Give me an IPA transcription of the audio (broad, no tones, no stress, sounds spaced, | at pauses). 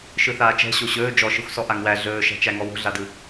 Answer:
ʃ ɯ θ aː t͡ʃ ɛ̤ ɕ o ɕ ɵː d͡ʒ ɔ ʃ ɯ xʷ s ɔ ʔ a ŋ w æ ɮ ɵː ʃ æ̤ t͡ʃ æ ŋ ɔ w o̤ ɮ a d ɯ